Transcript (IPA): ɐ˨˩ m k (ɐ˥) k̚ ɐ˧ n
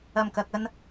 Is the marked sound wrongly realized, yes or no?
yes